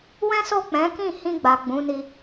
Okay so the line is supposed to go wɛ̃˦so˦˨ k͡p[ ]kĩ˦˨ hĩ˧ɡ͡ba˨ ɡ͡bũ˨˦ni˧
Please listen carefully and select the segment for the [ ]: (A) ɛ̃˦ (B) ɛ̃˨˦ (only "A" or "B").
B